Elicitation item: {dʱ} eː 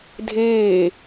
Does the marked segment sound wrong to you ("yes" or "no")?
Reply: no